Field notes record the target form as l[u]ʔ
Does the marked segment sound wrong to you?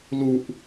no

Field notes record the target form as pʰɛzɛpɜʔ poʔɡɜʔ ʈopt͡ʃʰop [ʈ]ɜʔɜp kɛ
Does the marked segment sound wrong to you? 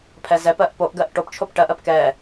no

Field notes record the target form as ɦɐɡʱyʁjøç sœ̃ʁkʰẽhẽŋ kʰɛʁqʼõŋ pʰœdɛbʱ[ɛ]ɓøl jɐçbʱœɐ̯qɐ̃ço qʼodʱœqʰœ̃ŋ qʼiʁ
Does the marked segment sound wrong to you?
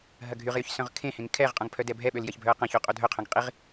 no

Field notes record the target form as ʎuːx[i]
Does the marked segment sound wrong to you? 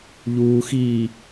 yes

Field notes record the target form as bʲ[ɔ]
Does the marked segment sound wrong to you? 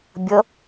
yes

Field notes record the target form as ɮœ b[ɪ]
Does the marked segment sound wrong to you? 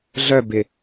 no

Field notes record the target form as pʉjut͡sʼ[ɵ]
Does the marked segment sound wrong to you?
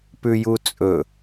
no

